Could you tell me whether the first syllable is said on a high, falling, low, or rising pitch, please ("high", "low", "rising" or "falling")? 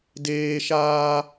high